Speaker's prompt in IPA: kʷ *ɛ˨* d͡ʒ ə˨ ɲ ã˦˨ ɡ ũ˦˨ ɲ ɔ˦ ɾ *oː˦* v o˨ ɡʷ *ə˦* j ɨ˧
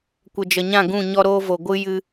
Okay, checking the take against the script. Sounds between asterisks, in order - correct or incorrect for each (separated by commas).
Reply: incorrect, correct, incorrect